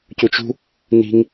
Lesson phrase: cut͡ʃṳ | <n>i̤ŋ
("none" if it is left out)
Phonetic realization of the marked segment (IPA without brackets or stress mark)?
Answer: n